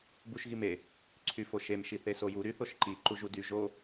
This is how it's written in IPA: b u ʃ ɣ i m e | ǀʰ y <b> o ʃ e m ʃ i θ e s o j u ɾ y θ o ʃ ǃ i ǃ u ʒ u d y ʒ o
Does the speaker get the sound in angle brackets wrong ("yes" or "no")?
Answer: yes